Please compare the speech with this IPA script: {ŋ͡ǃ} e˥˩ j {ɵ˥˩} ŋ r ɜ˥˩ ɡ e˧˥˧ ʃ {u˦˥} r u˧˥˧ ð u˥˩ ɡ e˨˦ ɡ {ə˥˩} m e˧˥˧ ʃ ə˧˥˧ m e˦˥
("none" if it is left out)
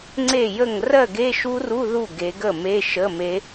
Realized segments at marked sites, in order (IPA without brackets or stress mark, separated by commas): ŋ͡ǀ, ə˥˩, u˦˥, ə˥˩